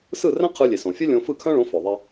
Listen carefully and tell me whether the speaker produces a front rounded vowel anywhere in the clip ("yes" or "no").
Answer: yes